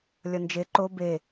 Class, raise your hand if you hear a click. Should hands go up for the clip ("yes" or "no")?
yes